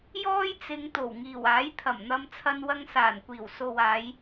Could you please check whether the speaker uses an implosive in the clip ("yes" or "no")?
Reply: no